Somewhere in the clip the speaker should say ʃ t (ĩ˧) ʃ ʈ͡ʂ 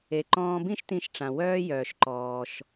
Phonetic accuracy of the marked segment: correct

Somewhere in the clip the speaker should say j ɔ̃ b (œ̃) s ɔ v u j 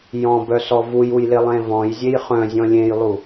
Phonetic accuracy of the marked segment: incorrect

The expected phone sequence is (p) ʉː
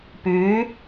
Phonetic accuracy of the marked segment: correct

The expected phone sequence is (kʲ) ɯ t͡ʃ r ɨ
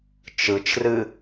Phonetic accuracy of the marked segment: incorrect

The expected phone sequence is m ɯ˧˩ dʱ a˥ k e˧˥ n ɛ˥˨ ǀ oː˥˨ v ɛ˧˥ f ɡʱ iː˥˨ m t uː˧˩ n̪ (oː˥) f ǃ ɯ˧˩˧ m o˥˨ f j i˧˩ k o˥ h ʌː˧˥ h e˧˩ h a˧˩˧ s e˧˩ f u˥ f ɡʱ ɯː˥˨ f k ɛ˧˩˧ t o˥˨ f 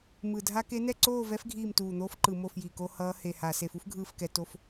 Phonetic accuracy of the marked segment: correct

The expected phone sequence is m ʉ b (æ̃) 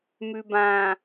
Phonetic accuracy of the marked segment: incorrect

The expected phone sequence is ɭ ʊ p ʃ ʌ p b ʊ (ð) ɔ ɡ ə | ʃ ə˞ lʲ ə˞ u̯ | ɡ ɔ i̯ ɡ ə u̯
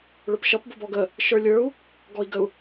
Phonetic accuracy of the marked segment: incorrect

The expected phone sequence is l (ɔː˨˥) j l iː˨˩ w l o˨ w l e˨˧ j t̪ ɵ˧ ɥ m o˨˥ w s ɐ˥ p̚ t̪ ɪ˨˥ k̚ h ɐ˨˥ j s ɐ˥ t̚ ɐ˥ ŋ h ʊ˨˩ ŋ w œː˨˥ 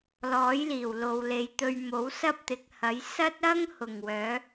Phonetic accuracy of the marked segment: correct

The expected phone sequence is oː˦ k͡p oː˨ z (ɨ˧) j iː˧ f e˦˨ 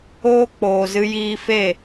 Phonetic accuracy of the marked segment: correct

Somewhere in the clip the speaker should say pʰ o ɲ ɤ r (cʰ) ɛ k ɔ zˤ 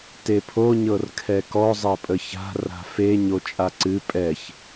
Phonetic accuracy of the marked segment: incorrect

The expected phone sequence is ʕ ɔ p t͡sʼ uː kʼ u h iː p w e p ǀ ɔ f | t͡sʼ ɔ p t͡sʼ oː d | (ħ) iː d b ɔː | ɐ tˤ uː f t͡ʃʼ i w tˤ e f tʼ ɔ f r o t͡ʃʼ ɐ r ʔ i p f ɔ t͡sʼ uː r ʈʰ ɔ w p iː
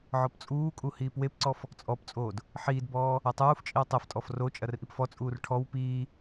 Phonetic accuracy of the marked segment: correct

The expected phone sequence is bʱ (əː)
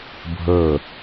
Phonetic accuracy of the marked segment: correct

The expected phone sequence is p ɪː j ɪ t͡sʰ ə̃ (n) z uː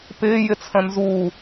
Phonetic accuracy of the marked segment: correct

